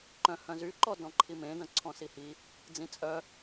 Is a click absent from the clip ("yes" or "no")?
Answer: no